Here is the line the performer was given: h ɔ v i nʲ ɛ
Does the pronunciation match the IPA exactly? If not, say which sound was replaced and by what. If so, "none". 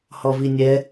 none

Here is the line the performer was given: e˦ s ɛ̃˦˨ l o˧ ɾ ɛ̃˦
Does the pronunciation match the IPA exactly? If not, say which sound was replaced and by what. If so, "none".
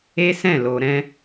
none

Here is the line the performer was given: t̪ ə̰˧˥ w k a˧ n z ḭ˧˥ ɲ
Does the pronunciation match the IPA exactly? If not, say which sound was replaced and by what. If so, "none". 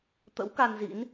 ɲ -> n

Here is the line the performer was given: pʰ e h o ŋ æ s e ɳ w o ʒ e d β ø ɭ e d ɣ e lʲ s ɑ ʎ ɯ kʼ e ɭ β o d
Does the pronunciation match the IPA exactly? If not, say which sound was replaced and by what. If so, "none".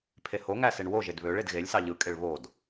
none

